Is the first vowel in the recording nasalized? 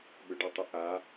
no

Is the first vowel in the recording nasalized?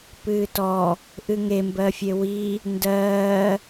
no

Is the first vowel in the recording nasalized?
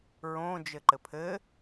yes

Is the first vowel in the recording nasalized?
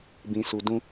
yes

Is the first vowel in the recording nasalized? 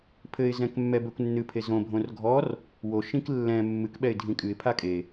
no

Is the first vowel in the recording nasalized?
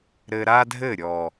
no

